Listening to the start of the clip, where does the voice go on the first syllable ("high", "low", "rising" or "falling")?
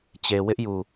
low